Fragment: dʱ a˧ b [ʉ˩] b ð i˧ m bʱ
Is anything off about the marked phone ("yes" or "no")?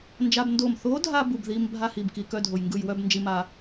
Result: yes